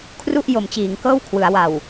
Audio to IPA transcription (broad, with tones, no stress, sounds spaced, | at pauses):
kʰ r u˥˩ ʔ j o˩˦ m t͡ɕ iː˩˦ ŋ k ɤː˥˩ w kʰ w ɯ˩˦ a̯ w a˨˩ w